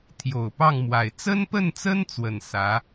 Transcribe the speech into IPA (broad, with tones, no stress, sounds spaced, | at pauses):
t̪ʰ j o˨˩ ʊ̯ p ɑ˥˩ ŋ m w a˨˩ ɪ̯ t͡s ə˥ n p ə˥˩ n t͡s ə˥ n t͡s w ə˨˩ n s ä˧˥